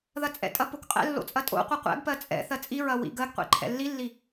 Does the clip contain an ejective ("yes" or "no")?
yes